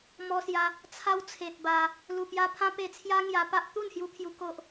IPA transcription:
m ɔ˧ s j a˧ | t͡sʰ a˧ w t͡sʰ e˨ t̚ b a˧ | l u˨˩ p j a˧ pʰ ã˦ p e˧ t͡sʰ j a˦ ŋ j a˧ p a˦ ʔ t̪ u˥˧ n h j u˧ pʰ j u˧ k o˦ ʔ

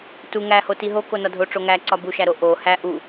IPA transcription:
t u ŋ æ h o t i ɦ o k o n ɒ dʱ o ʈ͡ʂ o ŋ æ ǀ ɒ b u ʃ æ ɾ o ʔ o h æ ʔ u

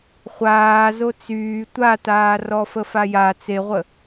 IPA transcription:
χʷ aː z o t͡s yː tʷ a t aː r ɔ f ə f a j a t͡s e ʁʷ ə

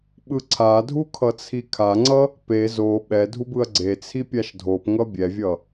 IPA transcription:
ɓ ɯ ǀʰ a dʱ u kʰ ʌ t͡sʰ i kʰ a ŋ͡ǀ ʌ | p e z o ɓ ɛ dʱ u b ɯ ɐ̯ ɡ͡ǀ e t͡sʰ i pʲ a ʃ dʱ o p ŋ ʌ bʲ ɛ vʲ ʌ

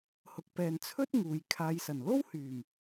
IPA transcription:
h ʊ˨ k̚ p ɛː˨ n t͡sʰ ɵ˥ t̚ ŋ uː˨ j kʰ aː˧ j s ɐ˨˩ n l o˥ w h yː˨˩ m

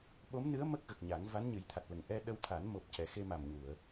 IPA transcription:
ɓ o˧˥ m n ɨ˧˥ ə̯ m ə˦˥ k̚ ɣ ə˨˩ k̚ ɲ a˨˩˦ ŋ v a˧˥ n ɲ ɨ˨˩˦ j t̪ʰ a˨˩ t̚ l ə˨˩ ŋ ʔ ɛ˧ ɗ ə˧ w t̪ʰ a˨˩˦ n m o˨˩ p̚ c ɛ˨˩ x e˧ m a˨˩ m ɲ u˨˩˨ ə̯

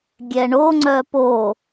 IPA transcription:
ɡʲ ɛ ɳ o ŋ͡ǀ œ p o

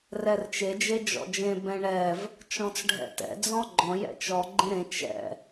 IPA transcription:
r ɛ r t͡ʃ e d͡ʒ e d͡ʒ ɔ̰ d͡ʒ ẽ b ɛ̃ ɳ ɛ v | t͡ʃ ɔ̃ t͡s ɖʱ ɛ̰ t ɛ̰ d͡z ɔ̃ ɡ͡ǃ ɔ̃ j ɛ̰ t͡ʃ ɔ ɡ͡ǃ ẽ ɾ ẽ t͡ʃ ɛ̰

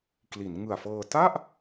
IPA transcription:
k l i˩˦ n ŋ ɯ˨˩ a̯ f ɤː˧ t a˥˩ ʔ

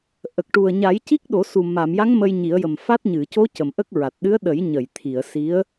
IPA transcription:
ʔ ə˨˩ k̚ ʈ u˨˩ ə̯ ɲ a˨˩˦ j c i˦˥ k̚ ɗ o˨˩˦ s u˨˩ m a˨˩˨ m j a˧˥ ŋ m ə˧ j ɲ i˨˩˦ ə̯ j ə˨˩ m f a˦˥ t̚ ɲ ɨ˨˩˨ c o˧˥ c ə˨˩ m ʔ ə˦˥ k̚ ɹ a˨˩ t̚ ɗ ɨ˧˥ ə̯ ɗ ə˨˩˦ j ɲ ə˨˩˨ j t̪ʰ i˨˩˨ ə̯ s i˧˥ ə̯

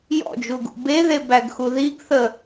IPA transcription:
j ɔ̰ d͡ʒ u ɡ ṵ b e ð e b æ ɡ x u ð i ɡ θ ə

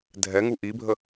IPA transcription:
dʱ ɛ ŋ u ʔ i bʱ ə

